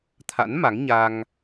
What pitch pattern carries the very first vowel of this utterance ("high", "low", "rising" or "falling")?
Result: rising